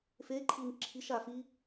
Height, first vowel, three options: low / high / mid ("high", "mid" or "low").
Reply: mid